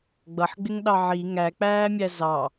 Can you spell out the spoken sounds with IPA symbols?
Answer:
ɡ͡b ʌ ħ ɡ͡b ɪ ŋ ɗ ɑ ʕ i ŋ æ k͡p æː mʲ æ z ɑ

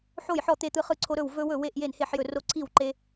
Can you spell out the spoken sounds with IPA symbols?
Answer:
ħ o˥˨ j ħ ɔ˥˨ t̪ e˦ t̪ ɯ˦ χ ɯ˥˨ ǀʰ o˦ ɾ ɵ˥˨ w v ɵ˦ w ɵ˥˨ w e˥˨ ʔ j e˥˨ n h e˥˨ ħ j ɵ˥˨ r o˦ ǀʰ i˥˨ w ǃ e˦

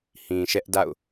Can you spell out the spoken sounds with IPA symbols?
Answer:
h ĩ˨ ʃ ɛ˦ ʔ d a̰˦˨ ʊ̯

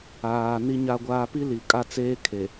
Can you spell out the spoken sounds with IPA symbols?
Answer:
aː˨ n i˨ ɲ a˨ ɡʷ aː˨ p i˦ l i˨ kʼ a˦˨ t͡s eː˦ kʰ e˨

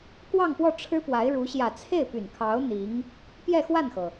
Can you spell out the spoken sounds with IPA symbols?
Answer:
k w ɑ˥˧ ŋ p w ɔ˥˩ ʈ͡ʂʰ ɻ̩˥ p w a˧˥ ɪ̯ ɻ u˧˥ ɕ j ä˨˩ t͡sʰ e˥˩ ɪ̯ p y˨˩ n kʰ ɑ˧˥ ʊ̯ n̪ i˧˥ ŋ | p j ɛ˥˧ x w a˥˩ n x ɤ˩

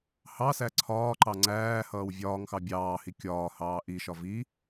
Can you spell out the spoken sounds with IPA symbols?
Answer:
h ɑ s æ ǀʰ ɒː ǃ ɑ ŋ͡ǀ æː h ʌː w vʲ ɒː ŋ x ɑ bʲ ɑː h i kʲ ɒː h ɑː ʔ i ʃ ɒ v i

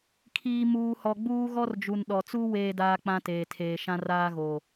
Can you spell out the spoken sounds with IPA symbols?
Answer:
kʰ iː˨ m uː˨ h ɔ˨ ɡ͡b uː˦ ɣ ɔ˦ r d͡ʒ u˨ n ɗ ɔ˨ t͡s u˦ w eː˦ d aː˦ k͡p ã˦ t eː˨ tʰ eː˨ ʃ ã˦ r aː˦ ɣ oː˨

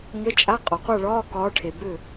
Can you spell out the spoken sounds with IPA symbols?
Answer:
ŋ ə˧˥˧ t͡ʃʼ a˧˥˧ qʼ ɒ˨ qʷ a˥˨ ɭ ɒː˧˥˧ k ɒː˨˦ ʈʰ e˨ b ʏ˥˨

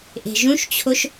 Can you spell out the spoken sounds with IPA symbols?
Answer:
ʔ e̤ ʒ ũ ʃ t͡ɕʰ o ʃ

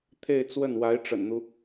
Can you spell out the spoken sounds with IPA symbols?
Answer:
t̪ʰ e˥˧ ɪ̯ t͡s w ə˥˩ n w a˧˥ ɪ̯ ʈ͡ʂ ə̰˨˩ n n̪ u˦

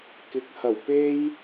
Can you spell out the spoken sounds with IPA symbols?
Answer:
k ɪ˨˥ k̚ h ɐ˨˩ w p e˥ j

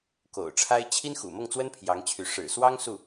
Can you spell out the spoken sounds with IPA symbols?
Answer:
k o̰˨˩ ʊ̯ ʈ͡ʂʰ a˥ ɪ̯ t͡ɕʰ i˥ n x ṵ˨˩ m ɤ˥˩ ŋ t͡s w ə˥ n pʰ j ɑ˧˥ ŋ t͡ɕʰ y˧˥ ʂ ɻ̩˨˩ s w ɑ˥ ŋ s u˥˩

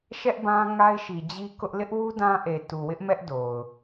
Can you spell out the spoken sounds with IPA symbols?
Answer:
ʃ ɛ˦ ʔ b ã˦ ŋ a˦ ɪ̯ ʃ i˨ d͡ʑ i˦ k ʊ˦ ʔ l ɪ˦ ʔ w u˦ d ã˦ ʔ e˨ t u˨ w ɪ˦ ʔ m ɛ˦ ʔ d o˨ ʊ̯

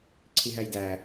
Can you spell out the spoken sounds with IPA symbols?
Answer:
ǀʰ i ɦ æ j d æ

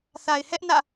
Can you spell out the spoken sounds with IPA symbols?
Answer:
θ a˨ ɪ̯ h ɛ˦ ʔ n ä̰˦˨

